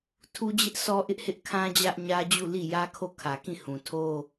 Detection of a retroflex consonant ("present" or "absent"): absent